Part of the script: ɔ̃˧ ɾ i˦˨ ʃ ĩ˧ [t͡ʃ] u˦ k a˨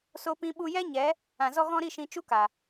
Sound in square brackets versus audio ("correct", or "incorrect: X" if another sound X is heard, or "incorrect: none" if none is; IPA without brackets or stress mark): correct